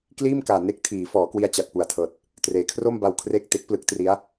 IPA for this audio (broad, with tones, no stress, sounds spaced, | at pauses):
k l iː˥˩ m k aː˨˩ n e˥˩ k̚ tʰ iː˩˦ f ɔː˩˦ k w i˧ a̯ t͡ɕ a˨˩ t̚ p u˨˩ a̯ tʰ ɤː˨˩ t̚ | t r eː˩˦ kʰ r o˥˩ m b a˧ w kʰ r e˥˩ k̚ t e˦˥ k̚ p l ɯ˦˥ k̚ t r i˦˥ a̯